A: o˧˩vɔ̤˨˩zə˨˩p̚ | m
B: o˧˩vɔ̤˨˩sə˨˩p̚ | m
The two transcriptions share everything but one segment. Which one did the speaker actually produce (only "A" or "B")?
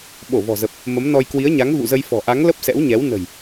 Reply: A